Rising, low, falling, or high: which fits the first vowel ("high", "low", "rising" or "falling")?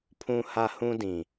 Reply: low